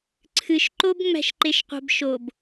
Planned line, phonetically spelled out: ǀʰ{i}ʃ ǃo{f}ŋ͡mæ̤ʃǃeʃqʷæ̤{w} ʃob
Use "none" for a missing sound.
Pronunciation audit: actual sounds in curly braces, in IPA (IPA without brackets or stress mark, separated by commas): ɨ, b, b